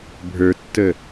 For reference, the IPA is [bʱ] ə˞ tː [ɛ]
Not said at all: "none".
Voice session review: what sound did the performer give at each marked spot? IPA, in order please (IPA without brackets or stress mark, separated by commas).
bʱ, ə